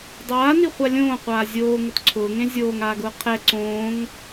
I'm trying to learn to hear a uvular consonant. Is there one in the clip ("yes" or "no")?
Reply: yes